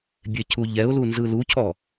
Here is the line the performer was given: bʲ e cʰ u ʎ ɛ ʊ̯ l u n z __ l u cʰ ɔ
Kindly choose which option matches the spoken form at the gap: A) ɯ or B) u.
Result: A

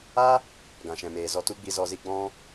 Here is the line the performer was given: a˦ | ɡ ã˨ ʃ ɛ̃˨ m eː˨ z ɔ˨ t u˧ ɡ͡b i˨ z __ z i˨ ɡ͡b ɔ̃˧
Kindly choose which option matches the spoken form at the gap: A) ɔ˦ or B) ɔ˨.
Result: B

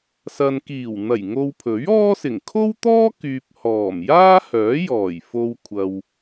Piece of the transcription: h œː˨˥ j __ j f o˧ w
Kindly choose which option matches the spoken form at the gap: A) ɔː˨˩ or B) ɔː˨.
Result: A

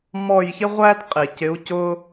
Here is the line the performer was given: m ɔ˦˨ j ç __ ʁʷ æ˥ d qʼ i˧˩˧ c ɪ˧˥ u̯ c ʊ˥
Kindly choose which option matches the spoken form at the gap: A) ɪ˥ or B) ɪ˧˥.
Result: A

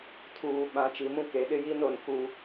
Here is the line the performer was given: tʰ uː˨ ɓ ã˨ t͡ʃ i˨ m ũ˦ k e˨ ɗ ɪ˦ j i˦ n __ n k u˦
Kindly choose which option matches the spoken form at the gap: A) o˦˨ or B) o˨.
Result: B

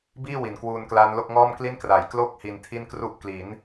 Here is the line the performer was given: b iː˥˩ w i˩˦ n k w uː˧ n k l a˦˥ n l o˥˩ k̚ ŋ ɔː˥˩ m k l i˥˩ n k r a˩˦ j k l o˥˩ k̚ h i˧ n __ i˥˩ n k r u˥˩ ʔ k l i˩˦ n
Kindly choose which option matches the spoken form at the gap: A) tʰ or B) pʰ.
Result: A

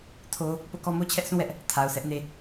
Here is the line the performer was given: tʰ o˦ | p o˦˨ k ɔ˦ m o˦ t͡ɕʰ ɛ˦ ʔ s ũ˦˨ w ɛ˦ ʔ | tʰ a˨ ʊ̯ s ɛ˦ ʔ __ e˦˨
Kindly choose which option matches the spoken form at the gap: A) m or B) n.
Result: B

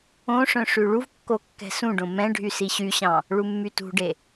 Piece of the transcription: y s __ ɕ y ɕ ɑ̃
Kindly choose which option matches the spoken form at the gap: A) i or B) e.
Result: A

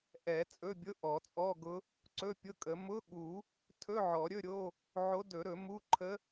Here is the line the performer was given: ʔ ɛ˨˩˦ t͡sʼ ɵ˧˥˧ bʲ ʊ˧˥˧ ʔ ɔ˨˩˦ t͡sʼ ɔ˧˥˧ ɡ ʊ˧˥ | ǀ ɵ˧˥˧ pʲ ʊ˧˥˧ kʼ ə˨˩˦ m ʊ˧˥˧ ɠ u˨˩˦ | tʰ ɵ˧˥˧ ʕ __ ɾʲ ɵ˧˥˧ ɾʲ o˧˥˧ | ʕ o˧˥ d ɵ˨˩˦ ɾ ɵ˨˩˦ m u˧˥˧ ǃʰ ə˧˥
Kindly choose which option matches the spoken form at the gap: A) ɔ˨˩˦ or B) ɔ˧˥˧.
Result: A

